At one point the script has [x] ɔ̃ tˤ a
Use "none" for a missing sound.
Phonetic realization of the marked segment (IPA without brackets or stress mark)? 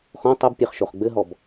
x